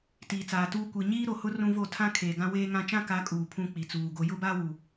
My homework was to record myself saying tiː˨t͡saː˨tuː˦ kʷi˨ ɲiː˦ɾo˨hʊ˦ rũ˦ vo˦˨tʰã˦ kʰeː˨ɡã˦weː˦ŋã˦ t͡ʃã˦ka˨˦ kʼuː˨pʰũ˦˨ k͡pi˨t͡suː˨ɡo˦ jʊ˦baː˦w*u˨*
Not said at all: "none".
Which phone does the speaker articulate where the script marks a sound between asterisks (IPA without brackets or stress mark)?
u˨